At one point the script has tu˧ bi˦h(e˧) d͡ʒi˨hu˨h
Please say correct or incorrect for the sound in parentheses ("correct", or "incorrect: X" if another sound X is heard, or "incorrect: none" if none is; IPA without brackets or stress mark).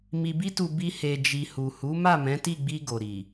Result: correct